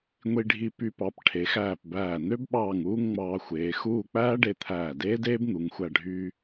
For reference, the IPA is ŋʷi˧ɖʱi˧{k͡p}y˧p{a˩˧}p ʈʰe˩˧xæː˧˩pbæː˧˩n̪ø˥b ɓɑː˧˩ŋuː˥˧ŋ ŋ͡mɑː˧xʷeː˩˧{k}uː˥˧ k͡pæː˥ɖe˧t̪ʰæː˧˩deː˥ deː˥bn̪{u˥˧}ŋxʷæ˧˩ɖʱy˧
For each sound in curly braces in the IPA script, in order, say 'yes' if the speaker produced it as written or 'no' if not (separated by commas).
no, no, no, no